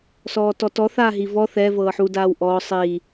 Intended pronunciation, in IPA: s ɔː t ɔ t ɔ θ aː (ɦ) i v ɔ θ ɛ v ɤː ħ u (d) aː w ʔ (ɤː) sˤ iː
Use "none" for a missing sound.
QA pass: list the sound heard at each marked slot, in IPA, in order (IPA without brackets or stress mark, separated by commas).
ɦ, d, ɔː